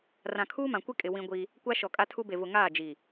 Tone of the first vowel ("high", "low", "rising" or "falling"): low